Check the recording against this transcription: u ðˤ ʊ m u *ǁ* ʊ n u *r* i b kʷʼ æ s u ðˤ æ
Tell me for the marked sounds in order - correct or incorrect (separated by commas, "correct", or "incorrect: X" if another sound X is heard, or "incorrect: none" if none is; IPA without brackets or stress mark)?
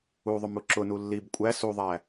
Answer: correct, incorrect: lː